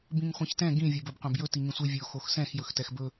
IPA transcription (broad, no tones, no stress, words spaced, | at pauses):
bĩŋχʷĩçtɛ̃ ɡĩ vʲobɵb qʷɛ̃bjɵ tiŋĩsʷi vʲo xoxsɛ̃x jɵxtɛxbɵ